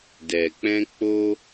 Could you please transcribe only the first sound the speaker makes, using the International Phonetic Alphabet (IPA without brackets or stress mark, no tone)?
d